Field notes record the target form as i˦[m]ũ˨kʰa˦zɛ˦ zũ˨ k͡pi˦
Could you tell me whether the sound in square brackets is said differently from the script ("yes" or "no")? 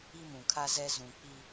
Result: no